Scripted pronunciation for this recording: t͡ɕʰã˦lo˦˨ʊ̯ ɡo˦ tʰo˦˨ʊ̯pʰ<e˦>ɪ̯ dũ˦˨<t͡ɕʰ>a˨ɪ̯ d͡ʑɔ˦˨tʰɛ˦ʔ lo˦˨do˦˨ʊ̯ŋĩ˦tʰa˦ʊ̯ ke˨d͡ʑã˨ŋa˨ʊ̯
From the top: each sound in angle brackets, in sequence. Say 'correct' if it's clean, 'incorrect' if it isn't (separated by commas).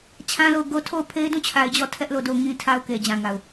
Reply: correct, correct